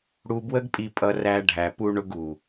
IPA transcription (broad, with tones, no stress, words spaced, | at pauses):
ɽu˧bwə˦ɡpʼi˧pʼʌ˧ ræ˧ɖʱæ˨pu˧ ɳʊ˧ɡu˨